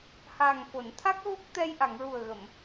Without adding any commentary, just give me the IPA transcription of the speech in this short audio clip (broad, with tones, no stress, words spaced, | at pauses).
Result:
haː˨˩ŋfo˨˩˨nt̪ʰa˦˥k̚ɣo˦˥k̚ t̪ɛ˧jʔa˨˩˨ŋɹu˨˩ə̯ɣə˨˩˨m